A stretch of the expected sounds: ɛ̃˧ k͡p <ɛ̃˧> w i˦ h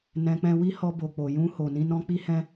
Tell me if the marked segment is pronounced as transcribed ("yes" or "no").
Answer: yes